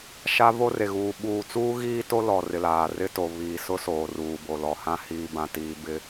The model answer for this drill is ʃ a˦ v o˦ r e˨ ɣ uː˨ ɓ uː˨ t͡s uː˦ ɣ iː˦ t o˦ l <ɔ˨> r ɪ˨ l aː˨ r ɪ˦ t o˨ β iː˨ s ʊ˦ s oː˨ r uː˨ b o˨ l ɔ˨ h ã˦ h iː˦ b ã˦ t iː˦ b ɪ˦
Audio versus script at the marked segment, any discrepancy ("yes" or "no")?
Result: no